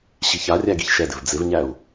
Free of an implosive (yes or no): yes